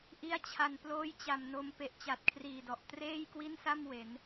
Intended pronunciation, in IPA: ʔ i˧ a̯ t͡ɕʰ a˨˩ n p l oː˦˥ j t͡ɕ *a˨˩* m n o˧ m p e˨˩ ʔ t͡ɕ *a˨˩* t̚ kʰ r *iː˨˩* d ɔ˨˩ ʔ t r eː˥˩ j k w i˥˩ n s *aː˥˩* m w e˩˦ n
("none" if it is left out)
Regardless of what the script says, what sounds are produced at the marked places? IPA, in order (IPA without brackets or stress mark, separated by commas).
a˨˩, a˨˩, iː˨˩, a˥˩